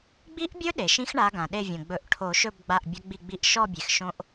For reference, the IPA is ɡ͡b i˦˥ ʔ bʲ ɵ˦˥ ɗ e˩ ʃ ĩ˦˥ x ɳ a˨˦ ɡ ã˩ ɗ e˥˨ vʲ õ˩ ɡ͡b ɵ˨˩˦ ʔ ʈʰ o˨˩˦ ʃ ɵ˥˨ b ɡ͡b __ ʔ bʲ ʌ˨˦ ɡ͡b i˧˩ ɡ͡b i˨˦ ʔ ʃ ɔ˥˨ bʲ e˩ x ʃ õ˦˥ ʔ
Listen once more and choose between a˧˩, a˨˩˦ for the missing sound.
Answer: a˧˩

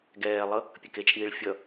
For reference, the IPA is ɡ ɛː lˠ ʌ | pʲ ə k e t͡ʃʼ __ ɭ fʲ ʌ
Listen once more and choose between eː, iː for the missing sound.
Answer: iː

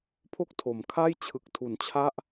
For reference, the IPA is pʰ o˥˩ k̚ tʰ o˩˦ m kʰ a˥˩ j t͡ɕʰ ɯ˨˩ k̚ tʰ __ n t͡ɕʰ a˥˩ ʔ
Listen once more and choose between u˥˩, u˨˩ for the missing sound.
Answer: u˨˩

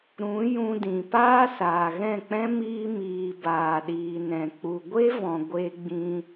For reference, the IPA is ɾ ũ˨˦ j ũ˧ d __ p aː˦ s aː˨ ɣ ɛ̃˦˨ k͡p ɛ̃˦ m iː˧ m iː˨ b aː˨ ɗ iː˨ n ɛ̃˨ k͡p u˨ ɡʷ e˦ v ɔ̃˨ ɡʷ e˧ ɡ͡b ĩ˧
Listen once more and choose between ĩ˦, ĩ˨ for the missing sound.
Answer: ĩ˨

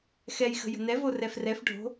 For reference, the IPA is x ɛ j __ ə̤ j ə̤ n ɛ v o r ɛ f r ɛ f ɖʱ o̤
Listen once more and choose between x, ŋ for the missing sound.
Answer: x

